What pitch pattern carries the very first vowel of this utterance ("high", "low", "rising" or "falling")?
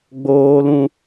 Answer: high